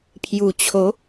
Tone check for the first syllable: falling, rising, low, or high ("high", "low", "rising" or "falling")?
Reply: low